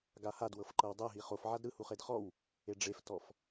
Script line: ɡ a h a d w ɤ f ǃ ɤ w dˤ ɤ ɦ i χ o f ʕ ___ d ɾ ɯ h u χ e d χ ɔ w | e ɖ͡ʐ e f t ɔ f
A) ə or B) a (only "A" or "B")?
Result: B